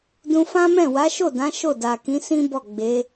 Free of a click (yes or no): yes